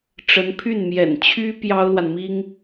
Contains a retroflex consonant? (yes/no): yes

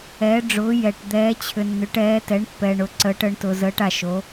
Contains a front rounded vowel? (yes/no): yes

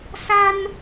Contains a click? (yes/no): no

